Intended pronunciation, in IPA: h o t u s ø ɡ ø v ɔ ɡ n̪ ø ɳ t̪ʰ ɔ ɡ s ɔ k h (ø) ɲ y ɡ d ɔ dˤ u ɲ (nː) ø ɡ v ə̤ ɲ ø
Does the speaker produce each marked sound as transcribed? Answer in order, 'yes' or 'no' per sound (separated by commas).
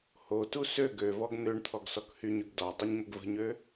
no, no